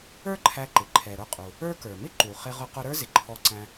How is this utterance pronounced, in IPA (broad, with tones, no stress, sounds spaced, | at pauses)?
ə˞˥ ǃʰ æ˧ ǃ ɪ˩ ǃʰ ɛ˩ ɾ ʊ˧ qʼ u˩ | ə˞˥ k ə˞˩ m ɪ˥ ǃ u˩ χ ɪ˧ ʁ ʊ˧ q ʊ˧ ɾ ə˞˥ z ɪ˩ ǃʰ ɔ˧ ǀ æ̃˧